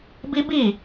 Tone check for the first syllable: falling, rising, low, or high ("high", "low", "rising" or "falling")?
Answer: high